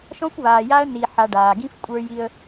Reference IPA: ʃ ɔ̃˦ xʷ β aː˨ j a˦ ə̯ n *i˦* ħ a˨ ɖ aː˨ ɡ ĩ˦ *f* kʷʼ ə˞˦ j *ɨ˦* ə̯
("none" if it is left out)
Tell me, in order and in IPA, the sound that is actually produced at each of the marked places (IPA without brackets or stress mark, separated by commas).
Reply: i˨, f, i˦